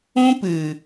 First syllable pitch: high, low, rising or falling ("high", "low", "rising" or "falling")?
high